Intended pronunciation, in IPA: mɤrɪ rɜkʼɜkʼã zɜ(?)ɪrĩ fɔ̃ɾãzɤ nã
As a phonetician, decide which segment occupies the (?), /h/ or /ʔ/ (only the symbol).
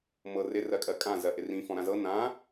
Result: ʔ